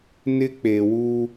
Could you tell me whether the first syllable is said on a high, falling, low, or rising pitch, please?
high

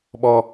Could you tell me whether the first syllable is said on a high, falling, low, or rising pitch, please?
high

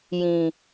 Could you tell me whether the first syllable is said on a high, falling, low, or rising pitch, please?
low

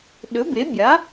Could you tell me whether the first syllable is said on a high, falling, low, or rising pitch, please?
rising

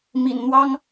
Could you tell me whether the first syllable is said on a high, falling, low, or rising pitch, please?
low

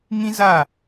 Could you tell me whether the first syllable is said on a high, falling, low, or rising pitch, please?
high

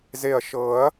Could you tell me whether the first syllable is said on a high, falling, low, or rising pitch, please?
low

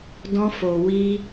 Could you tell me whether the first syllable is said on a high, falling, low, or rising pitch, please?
high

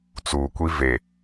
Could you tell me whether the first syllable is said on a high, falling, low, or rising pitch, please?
low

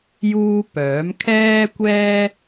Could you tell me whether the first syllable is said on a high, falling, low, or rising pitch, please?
high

